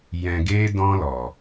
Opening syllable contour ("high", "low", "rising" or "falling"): low